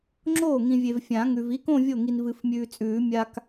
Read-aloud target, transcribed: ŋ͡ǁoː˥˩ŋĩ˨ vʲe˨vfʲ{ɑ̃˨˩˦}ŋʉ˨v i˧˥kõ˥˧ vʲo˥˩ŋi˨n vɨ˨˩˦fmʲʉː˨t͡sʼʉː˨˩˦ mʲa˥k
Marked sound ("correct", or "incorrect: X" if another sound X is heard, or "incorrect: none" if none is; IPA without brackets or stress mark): incorrect: ã˨˩˦